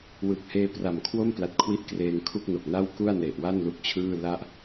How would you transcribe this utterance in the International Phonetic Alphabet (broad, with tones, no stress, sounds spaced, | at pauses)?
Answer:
w ɯ˨˩ k̚ h eː˧ p r a˨˩ m kʰ w o˥˩ m p l a˨˩ t̚ kʰ w i˦˥ ʔ k r eː˧ ŋ kʰ u˥˩ k̚ n o˨˩ k̚ n a˥˩ w k u˥˩ a̯ n e˨˩ ʔ w a˥˩ n l u˥˩ k̚ t͡ɕʰ ɯː˥˩ l a˥˩ ʔ